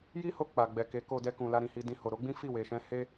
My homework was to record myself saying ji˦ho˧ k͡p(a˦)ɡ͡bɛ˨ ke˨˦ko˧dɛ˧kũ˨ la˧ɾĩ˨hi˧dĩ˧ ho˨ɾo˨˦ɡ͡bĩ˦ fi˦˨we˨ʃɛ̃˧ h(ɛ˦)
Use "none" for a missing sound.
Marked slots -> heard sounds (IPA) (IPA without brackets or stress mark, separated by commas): a˨, e˦